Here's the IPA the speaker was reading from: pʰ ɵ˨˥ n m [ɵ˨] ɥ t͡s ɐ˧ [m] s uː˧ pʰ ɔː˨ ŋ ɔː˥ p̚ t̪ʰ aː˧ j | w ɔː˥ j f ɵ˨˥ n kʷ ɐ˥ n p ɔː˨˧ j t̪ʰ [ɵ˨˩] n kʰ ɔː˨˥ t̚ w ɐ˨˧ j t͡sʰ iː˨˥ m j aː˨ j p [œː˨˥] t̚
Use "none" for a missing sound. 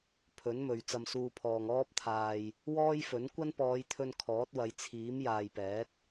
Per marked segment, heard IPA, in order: ɵ˨, m, ɵ˧, ɛː˨˥

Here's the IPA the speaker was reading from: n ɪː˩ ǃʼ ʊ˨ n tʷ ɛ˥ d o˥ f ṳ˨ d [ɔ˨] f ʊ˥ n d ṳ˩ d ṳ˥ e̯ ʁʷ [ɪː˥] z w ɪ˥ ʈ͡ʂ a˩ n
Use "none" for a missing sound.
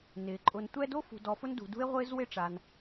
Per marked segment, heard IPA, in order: ɔ˨, ɪː˥

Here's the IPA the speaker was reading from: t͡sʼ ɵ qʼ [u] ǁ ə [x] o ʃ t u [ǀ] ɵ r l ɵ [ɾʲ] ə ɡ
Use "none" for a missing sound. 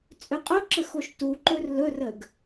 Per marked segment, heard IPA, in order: o, x, ǃ, r

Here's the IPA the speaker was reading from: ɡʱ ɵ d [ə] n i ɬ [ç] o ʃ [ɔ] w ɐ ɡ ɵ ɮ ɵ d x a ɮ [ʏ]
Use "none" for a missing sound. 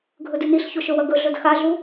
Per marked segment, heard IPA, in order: ʉ, ç, ɵ, u

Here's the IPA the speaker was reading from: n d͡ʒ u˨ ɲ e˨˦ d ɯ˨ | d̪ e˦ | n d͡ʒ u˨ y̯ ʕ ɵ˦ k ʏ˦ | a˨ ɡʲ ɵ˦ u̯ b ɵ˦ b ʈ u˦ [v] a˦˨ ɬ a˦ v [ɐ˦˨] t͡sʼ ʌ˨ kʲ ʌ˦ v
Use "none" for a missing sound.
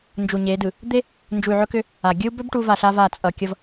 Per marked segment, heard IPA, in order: v, a˦˨

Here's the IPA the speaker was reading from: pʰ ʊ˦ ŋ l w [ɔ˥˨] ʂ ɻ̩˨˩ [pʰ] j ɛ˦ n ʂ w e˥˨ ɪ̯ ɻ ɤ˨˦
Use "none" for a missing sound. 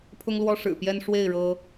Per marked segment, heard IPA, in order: ɔ˦, p

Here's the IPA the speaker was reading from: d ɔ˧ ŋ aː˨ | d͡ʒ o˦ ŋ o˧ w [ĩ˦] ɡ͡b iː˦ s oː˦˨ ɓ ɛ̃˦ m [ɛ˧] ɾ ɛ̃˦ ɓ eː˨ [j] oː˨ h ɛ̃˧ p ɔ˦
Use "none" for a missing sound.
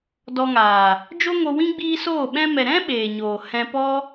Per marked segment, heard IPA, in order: ĩ˦, ɛ˨, ɲ

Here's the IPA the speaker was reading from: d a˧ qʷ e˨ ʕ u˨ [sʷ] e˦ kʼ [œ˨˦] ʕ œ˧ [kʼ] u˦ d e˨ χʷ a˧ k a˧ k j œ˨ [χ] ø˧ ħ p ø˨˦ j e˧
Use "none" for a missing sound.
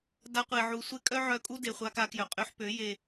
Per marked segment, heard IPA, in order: sʷ, œ˦, kʼ, qʼ

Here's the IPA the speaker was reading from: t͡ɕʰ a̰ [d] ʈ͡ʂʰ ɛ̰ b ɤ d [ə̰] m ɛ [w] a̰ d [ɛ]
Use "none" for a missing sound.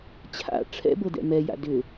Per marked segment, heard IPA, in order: none, ɛ̰, j, ʏ

